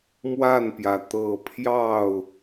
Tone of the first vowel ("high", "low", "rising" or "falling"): falling